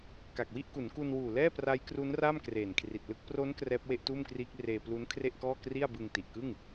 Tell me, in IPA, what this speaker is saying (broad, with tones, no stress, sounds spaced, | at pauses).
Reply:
k a˨˩ k̚ w i˥˩ ʔ k u˩˦ n k u˧ n w uː˨˩ l ɛː˥˩ p r a˦˥ j k r u˦˥ n r a˥˩ m k r eː˨˩ n kʰ r i˨˩ t̚ l ɯ˥˩ k̚ p r o˦˥ n k r ɛː˦˥ p̚ w e˥˩ ʔ t uː˥˩ m k r iː˦˥ k̚ r eː˧ p l u˦˥ n kʰ r e˥˩ ʔ k ɔː˥˩ k r i˥˩ a̯ b ɯ˧ ŋ t i˨˩ ʔ k ɯ˥˩ ŋ